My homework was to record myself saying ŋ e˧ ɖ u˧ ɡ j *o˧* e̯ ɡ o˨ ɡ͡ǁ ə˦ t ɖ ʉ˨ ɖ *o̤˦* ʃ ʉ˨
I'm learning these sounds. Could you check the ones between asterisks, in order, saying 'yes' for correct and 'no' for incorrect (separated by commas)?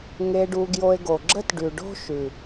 yes, yes